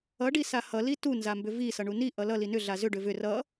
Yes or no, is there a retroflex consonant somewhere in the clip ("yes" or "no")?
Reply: yes